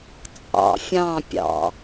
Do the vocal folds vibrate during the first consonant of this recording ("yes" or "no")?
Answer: no